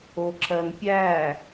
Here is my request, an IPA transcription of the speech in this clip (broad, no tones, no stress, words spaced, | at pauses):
oǁɜnpʲæ